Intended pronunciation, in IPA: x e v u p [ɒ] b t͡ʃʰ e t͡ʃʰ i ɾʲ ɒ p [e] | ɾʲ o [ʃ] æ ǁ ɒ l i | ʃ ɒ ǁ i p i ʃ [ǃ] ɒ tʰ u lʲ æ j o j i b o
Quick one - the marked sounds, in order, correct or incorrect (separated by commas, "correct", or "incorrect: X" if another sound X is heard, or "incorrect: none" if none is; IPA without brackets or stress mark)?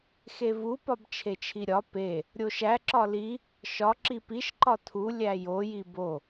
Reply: correct, correct, correct, correct